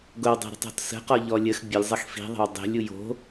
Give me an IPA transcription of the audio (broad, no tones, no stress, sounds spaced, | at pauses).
ɡ o w dˤ e̤ ɾ ə̤ tˤ ɔ̤ t s ə̤ q ɔ ʎ ɔ lʲ ə x bʲ ə lʲ zˤ ə x f i̤ ðˤ ə̤ w dˤ e̤ lʲ u j o̤